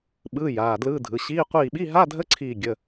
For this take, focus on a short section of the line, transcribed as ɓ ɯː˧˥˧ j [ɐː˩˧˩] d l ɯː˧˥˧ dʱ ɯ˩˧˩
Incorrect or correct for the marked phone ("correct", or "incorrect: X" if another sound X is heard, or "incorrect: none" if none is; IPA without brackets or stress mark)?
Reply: incorrect: aː˩˧˩